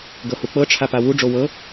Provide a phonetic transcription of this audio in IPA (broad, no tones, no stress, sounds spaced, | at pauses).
ɡ ɤ h u k͡p ɤ ʈ͡ʂʰ a p a w u ɖ͡ʐ o w ɤ